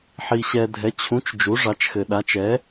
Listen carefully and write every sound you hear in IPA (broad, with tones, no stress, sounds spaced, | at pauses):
ħ i˨ ɕ ɛ˨ dʱ ɛ˩˥ t͡ɕʰ ũ˩˥ t͡ʃ d͡ʒ u˩˥ ʐ ɑ˩˥ t͡ʃ x ɘ˨ ɗ a˩˥ t͡ʃ ɛ˩˥